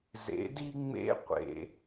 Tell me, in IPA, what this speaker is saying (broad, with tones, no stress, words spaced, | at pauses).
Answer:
zḛ˩˧di˧ŋ͡mḛ˧˥qʷḛ˩